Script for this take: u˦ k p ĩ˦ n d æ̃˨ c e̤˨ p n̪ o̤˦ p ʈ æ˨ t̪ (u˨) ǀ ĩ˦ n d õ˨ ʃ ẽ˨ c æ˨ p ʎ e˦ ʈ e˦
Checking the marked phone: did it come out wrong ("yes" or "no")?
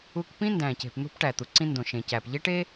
no